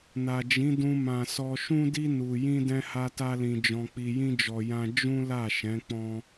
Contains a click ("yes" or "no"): no